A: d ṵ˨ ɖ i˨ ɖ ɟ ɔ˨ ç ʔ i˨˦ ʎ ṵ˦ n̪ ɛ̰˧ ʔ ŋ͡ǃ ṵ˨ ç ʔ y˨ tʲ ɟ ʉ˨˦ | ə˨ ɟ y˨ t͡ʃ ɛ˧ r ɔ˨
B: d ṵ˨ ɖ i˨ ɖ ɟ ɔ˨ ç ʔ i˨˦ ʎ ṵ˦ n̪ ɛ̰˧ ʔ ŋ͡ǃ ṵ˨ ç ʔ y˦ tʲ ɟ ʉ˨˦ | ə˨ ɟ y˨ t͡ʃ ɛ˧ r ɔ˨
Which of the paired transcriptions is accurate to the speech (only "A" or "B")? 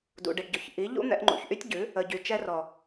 B